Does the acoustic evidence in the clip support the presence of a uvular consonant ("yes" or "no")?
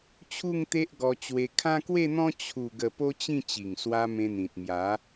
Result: no